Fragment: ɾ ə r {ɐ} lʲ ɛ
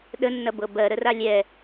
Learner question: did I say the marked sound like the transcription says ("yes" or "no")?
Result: no